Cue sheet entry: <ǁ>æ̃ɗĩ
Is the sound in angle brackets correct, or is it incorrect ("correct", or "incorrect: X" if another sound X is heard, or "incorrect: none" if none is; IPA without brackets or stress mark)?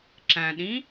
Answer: correct